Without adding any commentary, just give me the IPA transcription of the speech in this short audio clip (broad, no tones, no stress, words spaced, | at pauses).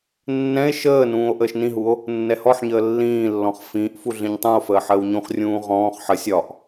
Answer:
nːɛ̃e̯ ʃəːnũːo̯ ʔəːʃnĩɦuo̯ | nːɛhɔħɲəː lːĩːlːɔ̃χ fĩːʔfu ɮĩɲtˤũo̯fəː ħəːwɲũχrʲũː ʁɔ̃ːχ ħə sʲɒʔ